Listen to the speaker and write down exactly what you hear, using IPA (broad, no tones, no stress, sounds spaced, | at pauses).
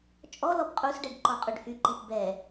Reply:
t͡ʃʼ ɔ l ɔ b qʼ u s ɖ ɛ ɖ ǃ ɔ qʼ y ɖ h y ǃ i p b ɛ